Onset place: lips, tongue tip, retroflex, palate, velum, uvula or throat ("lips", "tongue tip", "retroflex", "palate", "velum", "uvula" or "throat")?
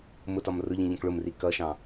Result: lips